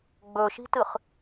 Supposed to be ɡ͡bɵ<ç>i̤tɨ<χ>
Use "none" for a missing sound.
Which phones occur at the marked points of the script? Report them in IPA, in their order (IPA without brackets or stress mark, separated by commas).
ʃ, χ